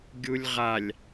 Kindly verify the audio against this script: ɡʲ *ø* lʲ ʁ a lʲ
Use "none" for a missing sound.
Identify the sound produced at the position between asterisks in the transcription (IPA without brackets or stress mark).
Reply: u